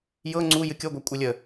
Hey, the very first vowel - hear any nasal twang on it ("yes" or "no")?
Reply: no